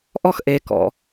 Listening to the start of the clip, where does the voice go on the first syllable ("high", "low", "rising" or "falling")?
high